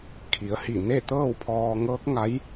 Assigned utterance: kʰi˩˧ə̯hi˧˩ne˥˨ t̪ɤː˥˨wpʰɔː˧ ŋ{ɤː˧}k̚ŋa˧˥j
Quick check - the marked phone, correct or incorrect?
incorrect